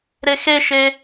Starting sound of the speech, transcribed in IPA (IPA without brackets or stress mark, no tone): ɾ